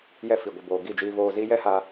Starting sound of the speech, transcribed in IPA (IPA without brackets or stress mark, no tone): j